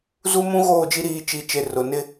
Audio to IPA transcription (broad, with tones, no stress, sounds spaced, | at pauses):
z u˦ m ũ˦ ɣ oː˦˨ d͡ʒ i˦ ɾ iː˨ t͡ʃ i˨ t͡ʃ e˨ r ʊ˨ n ɪ˦